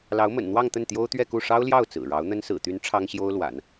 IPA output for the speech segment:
l ɑ˧˥ ʊ̯ m ə̰˨˩ n n̪ w ɑ˥˧ ŋ t̪ ə˥˩ n t̪ j o˥ ʊ̯ t̪ ɥ ɛ˥˧ k u˥˩ ʂ ɑ˥ ʊ̯ l j ɑ˥˩ ʊ̯ t͡s ɹ̩˨˩ ɻ ɑ˧˥ ʊ̯ n̪ ə˥ n s ɹ̩˨˩ t̪ y˧˥ n ʈ͡ʂʰ ɑ˥ ŋ ɕ j o˥ ʊ̯ l w a̰˨˩˦ n

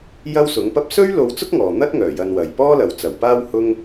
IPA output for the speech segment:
j ɐ˥ w s ʊ˨˥ ŋ p ɐ˥ p̚ s ɵ˥ ɥ l o˥ w t͡s ʊ˥ k̚ ŋ ɔː˨ n̪ ɐ˥ t̚ ŋ œː˨˩ j ɐ˧ n w ɐ˨ j p ɔː˥ l ɐ˨ w t͡s ɐ˨˩ w p aː˥ w h ʊ˥ ŋ

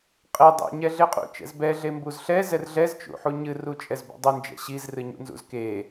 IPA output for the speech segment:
qʼ e dˤ ɛ̰ ɲ ɛ ɮ e qʼ ṵ t͡ʃ ɛ̰ z b ɛ ɮ e m b u z ɬ ɛ z ɛ r ɮ ɛ z t͡ʃ ṵ ħ u ɲ ɨ r u t͡ʃʼ ɛ z b ṵ dˤ u n d͡ʒ ɛ̰ ɕ i z r ɨ ɲ ṵ n z ṵ z k e

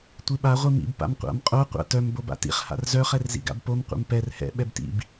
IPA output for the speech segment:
tʷ i ɓ a ʁʷ i m ḭ b p a̰ m qʷ a̰ m qʼ o qʷ a̰ t œ m b o b a̰ t ḭ χ h a̰ r z œ χ ɛ r z ḭ ɡ a̰ b p o m qʷ ɛ̰ m p ɛ r h ɛ̰ ɓ ɛ b t ḭ b

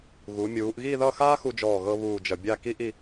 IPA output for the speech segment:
ɣ u˩˧ mʲ uː˩˧ ʔ ɣ i˥˧ ð ʌ˥˧ x aː˥ x u˧ d͡ʒ ɔː˧˩ ɣ ɤ˧ β uː˥˧ d͡ʒ ʌ˧ bʲ a˥˧ k i˥ ʔ i˥˧

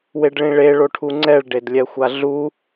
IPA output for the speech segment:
w e ɖ ɭ ĩ ɭ e ɭ o ʈʰ u ŋ͡ǀ ɛ ɭ ɖ e d lʲ ɛ xʷ a ɮ u

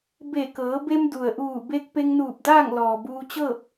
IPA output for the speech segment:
b e˧˩ k ɤː˩˧ b e˧ m d u˩ ə̯ ʔ uː˧˩ b e˧ k̚ p e˧ ŋ n uː˧˩ p̚ d aː˥˨ ŋ l ɔː˩ b uː˧ t͡ɕ ɤː˥˨ p̚

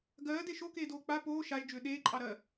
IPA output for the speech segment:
ɡ ɜː d e ʃ o k eː d oː k͡p a p oː ʃ a ʒ d͡ʒ ʏː ɗ eː ǃʼ ɑ ɾ ɜ

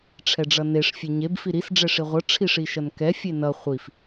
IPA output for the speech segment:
ʈ͡ʂʰ ɛ ɖ͡ʐ ʌ n e ʂ fʲ e ɲ e b f i ɾ i s ɖ͡ʐ ɛ ʂ i ʁʷ ʌ ʈ͡ʂʰ i ʂ i ʃ ʌ n k ɛ fʲ e n ʌ χʷ i f

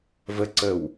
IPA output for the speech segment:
v ə ǀ ə w

